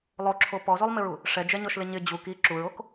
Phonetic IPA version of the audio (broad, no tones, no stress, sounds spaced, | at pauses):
lˠ o ǁʰ o p ɔ z o lˠ m ɪ ɹ u | ʂ ɛ d͡ʒ ɛ ɲ ɔ ʃ l ɪ ɲ ɪ d͡ʑ u k i ǁ u ɹ o k